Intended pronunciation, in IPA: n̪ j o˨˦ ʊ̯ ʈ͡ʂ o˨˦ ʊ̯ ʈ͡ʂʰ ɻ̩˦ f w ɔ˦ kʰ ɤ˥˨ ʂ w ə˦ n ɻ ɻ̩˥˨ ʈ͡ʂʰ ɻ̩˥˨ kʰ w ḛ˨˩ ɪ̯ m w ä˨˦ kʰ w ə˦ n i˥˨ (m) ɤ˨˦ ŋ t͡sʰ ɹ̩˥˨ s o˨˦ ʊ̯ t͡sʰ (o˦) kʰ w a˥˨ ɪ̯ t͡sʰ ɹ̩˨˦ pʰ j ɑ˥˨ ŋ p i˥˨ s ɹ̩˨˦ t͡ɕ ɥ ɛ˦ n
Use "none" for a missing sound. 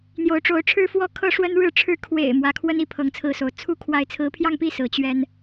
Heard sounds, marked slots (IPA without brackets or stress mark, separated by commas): pʰ, u˦